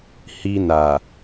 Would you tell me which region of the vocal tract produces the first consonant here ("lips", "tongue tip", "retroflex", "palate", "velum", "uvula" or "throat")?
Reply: throat